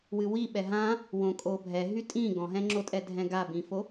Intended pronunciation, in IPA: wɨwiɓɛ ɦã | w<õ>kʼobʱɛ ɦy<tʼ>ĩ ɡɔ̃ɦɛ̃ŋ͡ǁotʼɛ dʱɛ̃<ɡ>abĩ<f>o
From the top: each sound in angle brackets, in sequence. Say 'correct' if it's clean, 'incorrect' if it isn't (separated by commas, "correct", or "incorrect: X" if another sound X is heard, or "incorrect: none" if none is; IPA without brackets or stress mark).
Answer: correct, correct, correct, correct